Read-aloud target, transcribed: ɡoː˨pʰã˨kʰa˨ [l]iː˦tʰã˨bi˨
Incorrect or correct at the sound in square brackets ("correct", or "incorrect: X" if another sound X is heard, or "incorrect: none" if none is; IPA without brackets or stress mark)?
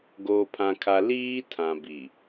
correct